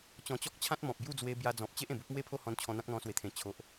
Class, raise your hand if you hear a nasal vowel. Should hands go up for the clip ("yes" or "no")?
yes